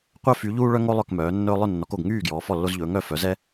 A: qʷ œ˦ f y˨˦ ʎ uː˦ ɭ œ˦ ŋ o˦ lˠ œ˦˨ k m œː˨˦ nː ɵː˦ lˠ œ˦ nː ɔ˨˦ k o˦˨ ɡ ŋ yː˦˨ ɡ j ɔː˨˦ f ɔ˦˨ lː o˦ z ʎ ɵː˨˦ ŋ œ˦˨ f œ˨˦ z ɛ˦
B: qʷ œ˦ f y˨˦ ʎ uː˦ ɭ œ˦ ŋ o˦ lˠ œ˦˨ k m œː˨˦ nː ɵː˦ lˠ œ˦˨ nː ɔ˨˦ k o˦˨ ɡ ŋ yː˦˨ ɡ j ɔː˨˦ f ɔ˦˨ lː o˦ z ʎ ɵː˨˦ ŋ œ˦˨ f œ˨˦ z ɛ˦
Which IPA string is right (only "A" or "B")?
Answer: B